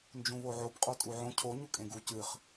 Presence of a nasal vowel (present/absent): present